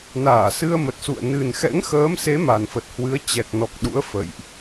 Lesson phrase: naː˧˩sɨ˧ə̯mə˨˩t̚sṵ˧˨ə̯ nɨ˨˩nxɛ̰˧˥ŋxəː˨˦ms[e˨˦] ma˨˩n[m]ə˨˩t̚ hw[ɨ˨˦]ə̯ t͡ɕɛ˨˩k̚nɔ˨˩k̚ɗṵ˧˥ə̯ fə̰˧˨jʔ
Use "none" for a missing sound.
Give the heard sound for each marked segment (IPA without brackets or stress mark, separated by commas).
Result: e˨˦, f, ɨ˨˦